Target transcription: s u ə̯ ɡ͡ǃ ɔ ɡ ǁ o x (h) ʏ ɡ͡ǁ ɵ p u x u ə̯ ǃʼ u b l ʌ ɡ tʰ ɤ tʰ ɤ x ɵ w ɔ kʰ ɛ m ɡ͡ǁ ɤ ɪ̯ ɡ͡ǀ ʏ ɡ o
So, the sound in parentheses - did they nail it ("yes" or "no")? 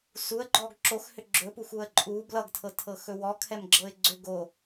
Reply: yes